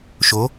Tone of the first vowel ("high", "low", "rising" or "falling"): rising